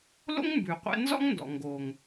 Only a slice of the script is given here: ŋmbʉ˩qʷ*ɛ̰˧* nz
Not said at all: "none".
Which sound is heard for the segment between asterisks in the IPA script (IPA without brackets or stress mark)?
ɛ̰˧